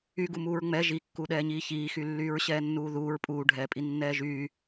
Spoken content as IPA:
yɡumuːɹ ŋ͡mɛ ʒikːuɗɛːɲiː çiːxylːyːɹ ɕɛːnːuːðuːɹ pʼuːɖʱɛːpʼi nːɛːʒyː

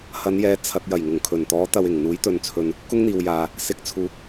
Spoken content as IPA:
hɐ˨˧njɛː˨˧ t͡sʰɐ˨t̚ jɐ˨˩jŋʊ˨˩ŋkʰɵ˨˩nt̪ɔː˨˥ t̪ɐ˨w ɪ˨˩ŋ n̪uː˨˥jt̪ɵ˨nt͡sʰɵ˨n | kʊ˥ŋn̪iː˨wjaː˨ | sɪ˨˥k̚t͡sʰuː˨˥k̚

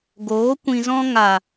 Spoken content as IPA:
ɡoː˨˦ kʷĩ˧zɔ̃˦ ŋa˨

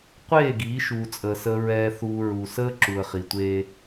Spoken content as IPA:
qʷeː˦˨ɡiː˨˦ʃuː˨t͡sʼəː˨ səː˨ɹɛː˨θuː˨ ɹu˨səː˦ ǁu˨ə̯χi˨tʷeː˦

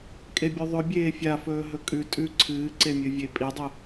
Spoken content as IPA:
kʼebʲʉðˤɵ bʲeːfʲafɵː ɦɵkʼʉ tʼʉ ǀʰɨːǀemʲɨvʲe pʼidˤɨ

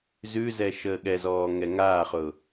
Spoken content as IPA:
zʉzɛ ʃəːɠɛzɔː ŋɛŋaːχʊː

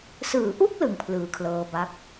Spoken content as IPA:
sɯː˩˦ʔu˥˩k̚ lɯ˧ŋpʰlɯː˨˩kʰlɤː˧ba˦˥k̚

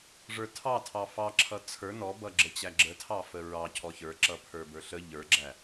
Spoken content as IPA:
ʐə˞tʰɑtʰɑ fɑǁʰʌ t͡sʰə˞ nɔbʌɡ͡ǁə t͡ɕæɡ͡ǁə tʰɑfəɹɑ cʰɔçə˞ǁʌ pʰə˞bə˞ɬə ʎə˞ɡ͡ǁæ

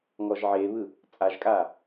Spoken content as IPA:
ŋɔʒʕeβɯ | t͡sʼaʒkʼa

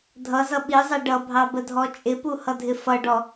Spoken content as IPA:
dʱʌzʌ ɓizˤɛ ɖʌbʱɑbədʱɔ t͡ʃʼɪpuhʌdʱɪ fʌɖɔ

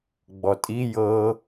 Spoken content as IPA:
ɡ͡bɔtʼi jɤ

